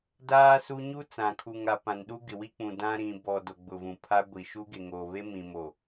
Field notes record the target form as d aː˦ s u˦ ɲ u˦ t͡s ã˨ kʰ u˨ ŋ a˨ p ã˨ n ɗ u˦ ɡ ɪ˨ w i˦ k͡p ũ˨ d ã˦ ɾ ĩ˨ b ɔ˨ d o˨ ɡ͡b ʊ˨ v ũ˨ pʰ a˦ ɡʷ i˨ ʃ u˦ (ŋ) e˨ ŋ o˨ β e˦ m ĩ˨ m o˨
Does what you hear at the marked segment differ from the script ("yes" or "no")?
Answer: yes